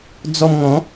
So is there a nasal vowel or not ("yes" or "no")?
yes